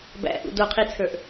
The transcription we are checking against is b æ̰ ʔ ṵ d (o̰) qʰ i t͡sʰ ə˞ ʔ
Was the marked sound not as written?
yes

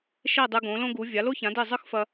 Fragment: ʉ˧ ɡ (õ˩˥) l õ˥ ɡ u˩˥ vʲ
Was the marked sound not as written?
no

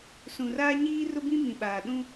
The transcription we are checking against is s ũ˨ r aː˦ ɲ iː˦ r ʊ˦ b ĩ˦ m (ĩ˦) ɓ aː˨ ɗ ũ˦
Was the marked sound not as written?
yes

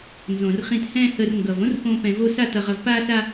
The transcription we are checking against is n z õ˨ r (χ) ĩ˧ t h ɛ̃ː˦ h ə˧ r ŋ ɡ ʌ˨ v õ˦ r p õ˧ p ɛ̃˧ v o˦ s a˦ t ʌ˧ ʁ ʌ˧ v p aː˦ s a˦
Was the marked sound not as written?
no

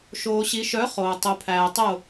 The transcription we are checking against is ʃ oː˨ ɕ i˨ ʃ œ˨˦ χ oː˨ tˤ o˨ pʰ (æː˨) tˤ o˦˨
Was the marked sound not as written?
no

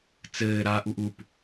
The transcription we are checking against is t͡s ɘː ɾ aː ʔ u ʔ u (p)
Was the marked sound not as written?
no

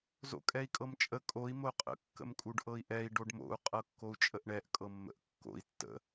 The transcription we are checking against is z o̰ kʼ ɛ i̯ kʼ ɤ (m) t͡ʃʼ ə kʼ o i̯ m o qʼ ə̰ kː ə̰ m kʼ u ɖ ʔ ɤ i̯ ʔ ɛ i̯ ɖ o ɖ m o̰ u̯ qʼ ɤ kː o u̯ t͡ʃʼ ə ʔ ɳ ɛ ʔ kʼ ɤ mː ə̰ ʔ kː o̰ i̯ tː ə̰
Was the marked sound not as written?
no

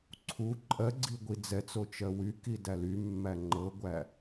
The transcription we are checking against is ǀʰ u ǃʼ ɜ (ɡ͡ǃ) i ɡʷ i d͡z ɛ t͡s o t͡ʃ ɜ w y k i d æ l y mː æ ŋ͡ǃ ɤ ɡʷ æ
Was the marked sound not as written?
yes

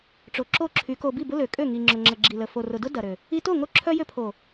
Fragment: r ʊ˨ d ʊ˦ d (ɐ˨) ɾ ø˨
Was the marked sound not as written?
no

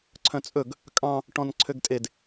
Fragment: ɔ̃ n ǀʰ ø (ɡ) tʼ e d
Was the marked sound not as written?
no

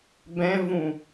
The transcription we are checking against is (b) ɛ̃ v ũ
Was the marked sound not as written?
no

